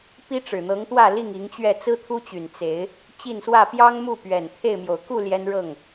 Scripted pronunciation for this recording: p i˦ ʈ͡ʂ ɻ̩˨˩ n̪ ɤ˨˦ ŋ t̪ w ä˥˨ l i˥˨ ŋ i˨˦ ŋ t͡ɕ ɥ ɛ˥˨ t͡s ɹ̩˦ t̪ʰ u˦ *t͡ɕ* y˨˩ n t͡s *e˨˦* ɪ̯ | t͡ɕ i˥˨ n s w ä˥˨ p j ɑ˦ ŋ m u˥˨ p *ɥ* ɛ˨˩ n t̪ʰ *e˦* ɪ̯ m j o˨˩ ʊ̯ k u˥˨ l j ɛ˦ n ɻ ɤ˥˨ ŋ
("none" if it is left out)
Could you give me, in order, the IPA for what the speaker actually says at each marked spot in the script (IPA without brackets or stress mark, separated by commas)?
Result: t͡ɕ, e˨˦, ɥ, e˥˨